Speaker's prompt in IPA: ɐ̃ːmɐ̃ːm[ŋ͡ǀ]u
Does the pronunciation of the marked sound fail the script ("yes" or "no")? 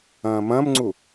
no